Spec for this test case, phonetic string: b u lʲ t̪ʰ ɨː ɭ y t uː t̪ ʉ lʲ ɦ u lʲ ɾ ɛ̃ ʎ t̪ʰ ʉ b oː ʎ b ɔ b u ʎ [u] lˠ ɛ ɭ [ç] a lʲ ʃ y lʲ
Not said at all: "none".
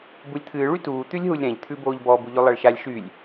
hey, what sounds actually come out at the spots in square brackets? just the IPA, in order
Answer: ʉ, ʃ

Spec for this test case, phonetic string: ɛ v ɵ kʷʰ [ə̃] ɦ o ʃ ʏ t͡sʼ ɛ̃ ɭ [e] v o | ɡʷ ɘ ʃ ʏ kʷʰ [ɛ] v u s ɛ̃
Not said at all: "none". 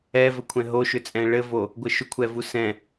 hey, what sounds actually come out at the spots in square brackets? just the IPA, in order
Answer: ɛ̃, ɘ, ɛ

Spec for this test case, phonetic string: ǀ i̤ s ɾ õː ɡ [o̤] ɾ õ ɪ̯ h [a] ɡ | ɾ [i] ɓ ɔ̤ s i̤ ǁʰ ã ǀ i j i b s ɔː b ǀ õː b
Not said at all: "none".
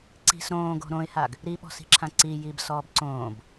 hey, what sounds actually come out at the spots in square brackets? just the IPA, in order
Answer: o̤, a, i

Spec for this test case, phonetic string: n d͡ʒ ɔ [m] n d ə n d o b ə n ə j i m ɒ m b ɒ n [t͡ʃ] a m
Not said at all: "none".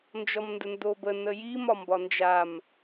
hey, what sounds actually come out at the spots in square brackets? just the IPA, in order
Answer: m, d͡ʒ

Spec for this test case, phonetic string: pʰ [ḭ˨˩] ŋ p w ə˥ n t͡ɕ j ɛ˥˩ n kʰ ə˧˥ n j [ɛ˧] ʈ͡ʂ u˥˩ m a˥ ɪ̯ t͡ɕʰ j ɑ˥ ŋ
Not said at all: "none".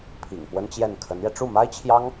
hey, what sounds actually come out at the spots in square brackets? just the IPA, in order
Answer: ḭ˨˩, ɛ˧

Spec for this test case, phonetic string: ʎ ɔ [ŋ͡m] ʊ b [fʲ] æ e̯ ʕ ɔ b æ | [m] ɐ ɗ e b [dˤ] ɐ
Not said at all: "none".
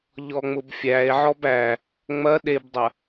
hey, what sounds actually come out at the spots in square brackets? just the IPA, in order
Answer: ŋ͡m, fʲ, ŋ͡m, dˤ

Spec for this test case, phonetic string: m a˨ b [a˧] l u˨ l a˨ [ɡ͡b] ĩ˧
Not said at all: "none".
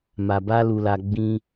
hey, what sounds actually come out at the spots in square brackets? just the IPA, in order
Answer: a˧, ɡ͡b

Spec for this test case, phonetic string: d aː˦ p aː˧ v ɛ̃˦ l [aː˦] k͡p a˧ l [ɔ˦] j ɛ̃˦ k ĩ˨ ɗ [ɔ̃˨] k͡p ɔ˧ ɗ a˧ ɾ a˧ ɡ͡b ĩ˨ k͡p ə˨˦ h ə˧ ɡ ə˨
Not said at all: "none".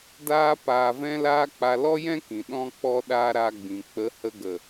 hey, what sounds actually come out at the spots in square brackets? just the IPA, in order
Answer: aː˦, ɔ˦, ɔ̃˧

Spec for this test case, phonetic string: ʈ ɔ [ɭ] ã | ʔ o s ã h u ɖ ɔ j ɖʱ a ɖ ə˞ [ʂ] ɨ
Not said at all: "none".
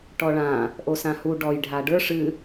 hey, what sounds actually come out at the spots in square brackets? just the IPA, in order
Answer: ɭ, ʂ

